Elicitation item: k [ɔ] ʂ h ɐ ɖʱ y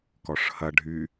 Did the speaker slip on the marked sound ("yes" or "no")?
no